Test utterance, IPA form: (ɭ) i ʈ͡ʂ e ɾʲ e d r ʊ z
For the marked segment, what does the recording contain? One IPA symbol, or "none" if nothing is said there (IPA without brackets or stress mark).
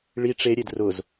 ɭ